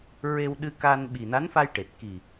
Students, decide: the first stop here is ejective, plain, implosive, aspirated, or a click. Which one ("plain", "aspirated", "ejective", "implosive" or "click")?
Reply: implosive